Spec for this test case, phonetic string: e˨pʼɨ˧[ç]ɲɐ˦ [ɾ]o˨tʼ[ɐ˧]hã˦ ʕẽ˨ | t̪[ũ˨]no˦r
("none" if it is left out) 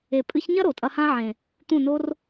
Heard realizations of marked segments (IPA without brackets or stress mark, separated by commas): ç, ɾ, ɐ˧, ũ˦˨